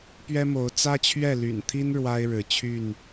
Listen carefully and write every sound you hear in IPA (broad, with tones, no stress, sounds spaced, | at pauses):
p ɥ ɛ˦ m o˨˦ ʊ̯ t͡s ä˦ t͡ɕʰ ɥ ɛ˥˨ l y̰˨˩ n t̪ʰ i˦ n ɻ w a˦ ɪ̯ ɻ ɻ̩˨˦ t͡ɕʰ y˥˨ n